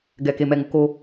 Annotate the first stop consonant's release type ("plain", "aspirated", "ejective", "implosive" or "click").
plain